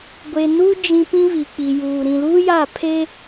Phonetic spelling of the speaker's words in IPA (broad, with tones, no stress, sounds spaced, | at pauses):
ɡʷ e˨ n u˦ d͡ʒ ĩ˨ p ĩ˦ β i˨ k͡p i˨ j uː˨ ɾ ĩ˨ l uː˦ j a˦˨ pʰ e˦